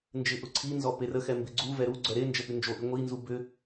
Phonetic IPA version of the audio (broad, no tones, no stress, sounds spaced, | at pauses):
n d͡ʒ ɪ ʔ ʊ ǀʰ i n z ɔ p e r ə x ɛ m b ɪ ɡ͡ǀ u v ɛ ɾ u ɡ͡ǀ œ ɾ e n d͡ʒ ə p y n d͡ʒ o ʔ i ŋʷ i n z u b ʏ